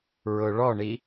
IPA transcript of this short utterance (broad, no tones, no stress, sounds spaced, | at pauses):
ɹ ʊ ɭ ɔ ɳ i